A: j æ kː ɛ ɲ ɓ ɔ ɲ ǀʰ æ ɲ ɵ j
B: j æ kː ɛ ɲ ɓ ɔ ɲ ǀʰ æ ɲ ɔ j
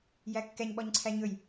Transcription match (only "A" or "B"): A